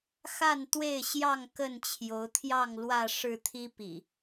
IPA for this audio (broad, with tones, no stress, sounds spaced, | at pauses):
x a˥˨ n t̪ w e˥˨ ɪ̯ ɕ j ɑ˥˨ ŋ k ə˥˨ n t͡ɕʰ j o˨˦ ʊ̯ t̪ʰ j ɑ˥˨ ŋ l w ä˥˨ ʂ ɻ̩˥˨ t̪ʰ i˦ p ḭ˨˩